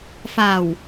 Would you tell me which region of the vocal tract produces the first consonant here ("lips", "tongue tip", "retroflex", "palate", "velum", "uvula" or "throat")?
lips